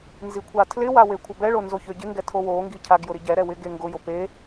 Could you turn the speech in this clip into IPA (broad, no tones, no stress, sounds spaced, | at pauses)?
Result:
n z i kʷʰ a tʰ l ɪ w a w e kʷʰ ɪ b ɛ ɭ o n z o ç ø ɟ ɪ ŋ ɡ ɛ tʰ o w o ŋ ɡ i cʰ a ɡ j ʊ ɾ i ɟ ɛ ɾ ɛ w ɪ ɡ e ŋ ɡ ʊ j o p e